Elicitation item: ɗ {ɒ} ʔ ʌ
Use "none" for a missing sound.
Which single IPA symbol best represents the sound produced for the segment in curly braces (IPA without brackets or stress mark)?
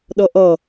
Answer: ʌ